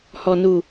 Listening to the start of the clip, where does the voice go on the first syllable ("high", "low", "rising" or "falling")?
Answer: low